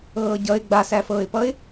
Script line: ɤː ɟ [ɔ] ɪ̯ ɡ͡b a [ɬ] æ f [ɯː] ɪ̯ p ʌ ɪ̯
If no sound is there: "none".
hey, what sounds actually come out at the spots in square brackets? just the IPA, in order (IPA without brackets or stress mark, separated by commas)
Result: ʌ, s, ɤː